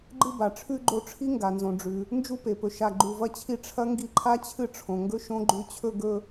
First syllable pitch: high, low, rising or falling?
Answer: high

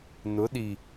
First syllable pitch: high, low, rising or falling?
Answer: rising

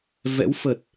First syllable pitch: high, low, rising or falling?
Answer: rising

